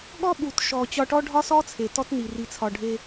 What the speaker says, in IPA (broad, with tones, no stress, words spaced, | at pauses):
ɠɔ˦ɓu˨tʃɔ˨ t͡ɕɒ˧ʈɔ˦ɖʱɒ˦ sɔ˦t͡sʰe˨ tɔ˦tni˨ ri˨t͡sʰɒ˨ɖʱe˧